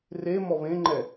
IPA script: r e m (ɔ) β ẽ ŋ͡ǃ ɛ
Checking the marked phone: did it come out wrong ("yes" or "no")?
no